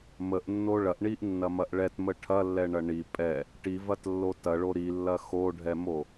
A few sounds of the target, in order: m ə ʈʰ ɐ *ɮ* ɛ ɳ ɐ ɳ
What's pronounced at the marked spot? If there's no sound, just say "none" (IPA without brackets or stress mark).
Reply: lː